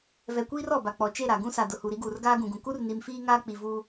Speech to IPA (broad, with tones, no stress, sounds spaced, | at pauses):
v ɛ˨ kʷ iː˦ r ɔ˨ b a˨ k͡p ɔ˨ t͡ʃ e˦˨ ɾ a˨ ɡ ũ˦ s a˨ d ʊ˨ h u˨ ɾ i˦ ɡ uː˨ r ɡ aː˦ ɡ ũ˨ ɡ ũ˨ k u˦ r n i˨ m f iː˦ ŋ aː˦ k͡p i˨ v uː˦